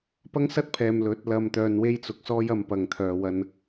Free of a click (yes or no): yes